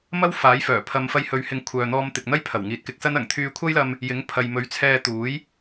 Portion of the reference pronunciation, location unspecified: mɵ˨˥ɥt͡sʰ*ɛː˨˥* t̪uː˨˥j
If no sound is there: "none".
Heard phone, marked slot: ɛː˧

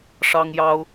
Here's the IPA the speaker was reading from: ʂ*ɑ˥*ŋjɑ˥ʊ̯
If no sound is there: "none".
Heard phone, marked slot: ɑ˥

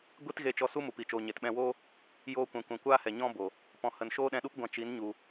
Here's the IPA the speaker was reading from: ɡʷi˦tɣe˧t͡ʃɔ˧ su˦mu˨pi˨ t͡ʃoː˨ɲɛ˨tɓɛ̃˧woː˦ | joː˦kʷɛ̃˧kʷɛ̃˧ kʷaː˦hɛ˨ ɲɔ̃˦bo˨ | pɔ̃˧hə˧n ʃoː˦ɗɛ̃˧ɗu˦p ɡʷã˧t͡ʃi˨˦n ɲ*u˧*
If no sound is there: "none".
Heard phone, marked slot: u˧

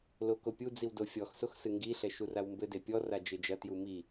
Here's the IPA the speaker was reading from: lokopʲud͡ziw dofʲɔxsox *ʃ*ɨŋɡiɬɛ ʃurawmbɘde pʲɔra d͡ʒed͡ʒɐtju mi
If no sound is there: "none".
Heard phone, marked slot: s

